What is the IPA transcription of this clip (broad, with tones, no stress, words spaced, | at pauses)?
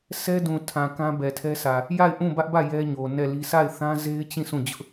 sɛ˦dũ˨tʰã˨ kã˦bɛ˨ tʰɛ˦sʰä˨ | ja˦˨ɪ̯ ʔũ˦˨bä˦ʔbä˦˨ jɛ˦ɲo˨ nɛ˦˨li˦ sʰa˦˨ɪ̯θã˦ze˦ɪ̯t͡ɕĩ˦˨ sʰũ˦˨ d͡ʑʊ˦ʔ